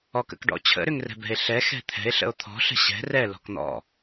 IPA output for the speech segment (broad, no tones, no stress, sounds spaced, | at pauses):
ɔ k ə̰ k ɖ ɔ̰ t͡ɕʰ ə̰ ɾ ʏ ŋ r ɛ̤ b ɛ̤ e̯ ɬ ɛ x ɛ̤ t̪ʰ ɛ̤ e̯ ɬ ə̰ o̯ t̪ʰ ɔ̤ ɬ ə̤ ɕ ɛ̤ r ɛ l ɔ̤ k n̪ ɔ̰